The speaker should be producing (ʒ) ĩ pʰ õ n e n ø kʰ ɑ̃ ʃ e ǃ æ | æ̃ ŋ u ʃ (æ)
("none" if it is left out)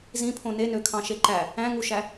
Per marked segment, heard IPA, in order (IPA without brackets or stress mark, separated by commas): z, æ